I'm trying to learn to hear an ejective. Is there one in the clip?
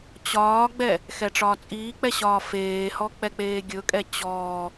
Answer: yes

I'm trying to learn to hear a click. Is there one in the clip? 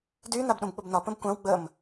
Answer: no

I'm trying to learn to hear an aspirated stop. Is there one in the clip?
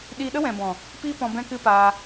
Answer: no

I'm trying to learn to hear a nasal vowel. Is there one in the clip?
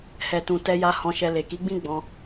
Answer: yes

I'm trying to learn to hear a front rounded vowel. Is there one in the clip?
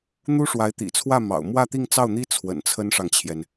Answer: no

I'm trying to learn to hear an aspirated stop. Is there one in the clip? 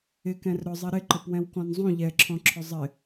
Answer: yes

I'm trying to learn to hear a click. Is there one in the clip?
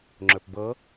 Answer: yes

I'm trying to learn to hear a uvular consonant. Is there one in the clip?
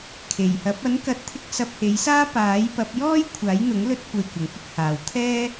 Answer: no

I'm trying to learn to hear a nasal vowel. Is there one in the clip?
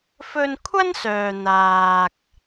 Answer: no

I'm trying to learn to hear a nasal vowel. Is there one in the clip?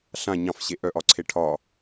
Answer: yes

